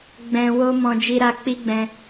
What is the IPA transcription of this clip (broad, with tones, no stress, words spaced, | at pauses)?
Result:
ɡ͡bɛ̃˨ wo˧mɔ̃˨ d͡ʒi˧ɾa˧ k͡pi˦ɡ͡bɛ̃˧